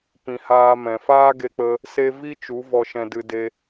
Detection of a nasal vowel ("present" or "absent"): present